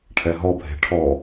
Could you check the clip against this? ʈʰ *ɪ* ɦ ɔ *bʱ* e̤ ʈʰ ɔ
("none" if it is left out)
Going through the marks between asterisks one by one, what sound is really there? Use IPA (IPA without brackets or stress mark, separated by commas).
ɛ, bʱ